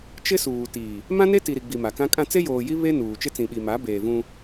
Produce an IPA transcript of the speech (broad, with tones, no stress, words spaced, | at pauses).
t͡ʃɪ˦suː˨ tiː˨ | mã˦ne˦ti˨ɾi˨ ɡ͡bi˨ma˨kã˦kʼã˦ t͡se˦joː˨ji˦ βe˦ nuː˨t͡ʃɪ˦ t͡sĩ˨ɓi˨ma˨˦ beː˨vũ˦